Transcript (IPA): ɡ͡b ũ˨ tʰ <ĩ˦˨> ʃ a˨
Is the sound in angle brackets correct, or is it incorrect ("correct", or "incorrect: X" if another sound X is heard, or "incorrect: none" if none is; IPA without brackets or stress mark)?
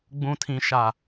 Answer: incorrect: ĩ˨